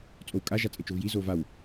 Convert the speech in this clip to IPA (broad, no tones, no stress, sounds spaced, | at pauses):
t͡sʼ o w kʼ a ʒ a t͡sʼ e t͡ʃ o v j i z o v a w